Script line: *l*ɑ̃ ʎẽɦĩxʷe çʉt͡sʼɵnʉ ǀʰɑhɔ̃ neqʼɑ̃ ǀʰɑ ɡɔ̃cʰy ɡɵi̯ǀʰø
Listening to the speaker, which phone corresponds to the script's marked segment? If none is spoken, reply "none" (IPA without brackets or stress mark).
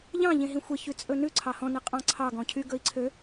ʎ